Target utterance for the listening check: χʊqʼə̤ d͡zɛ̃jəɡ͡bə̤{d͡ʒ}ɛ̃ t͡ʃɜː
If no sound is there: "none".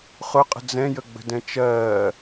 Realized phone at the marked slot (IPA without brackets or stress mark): d